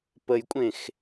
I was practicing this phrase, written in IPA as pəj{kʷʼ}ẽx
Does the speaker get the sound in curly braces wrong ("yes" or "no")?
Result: no